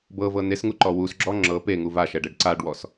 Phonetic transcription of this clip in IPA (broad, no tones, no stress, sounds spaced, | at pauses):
b ɤ v ɤ n e s ŋ u ǃ ɔ w u s ɡ͡ǁ ɔ ŋ͡ǁ ɤ p e ŋ u v a ʃ ɛ ɖ e ɖ ǀ a ɖ w ɔ s